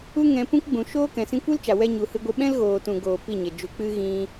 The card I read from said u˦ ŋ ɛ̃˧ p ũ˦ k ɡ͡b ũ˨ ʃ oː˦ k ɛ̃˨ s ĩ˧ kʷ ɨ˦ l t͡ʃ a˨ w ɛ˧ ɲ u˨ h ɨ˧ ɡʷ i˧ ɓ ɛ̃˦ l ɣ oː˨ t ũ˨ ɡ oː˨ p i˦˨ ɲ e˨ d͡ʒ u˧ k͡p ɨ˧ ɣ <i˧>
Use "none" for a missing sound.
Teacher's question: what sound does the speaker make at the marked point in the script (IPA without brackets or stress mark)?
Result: ĩ˧